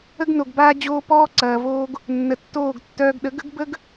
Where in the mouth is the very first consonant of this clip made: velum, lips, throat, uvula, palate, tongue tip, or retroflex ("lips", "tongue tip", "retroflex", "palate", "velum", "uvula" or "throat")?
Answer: velum